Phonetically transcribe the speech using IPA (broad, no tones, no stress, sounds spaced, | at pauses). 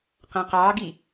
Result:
q æ̃ q ɑː ɡ i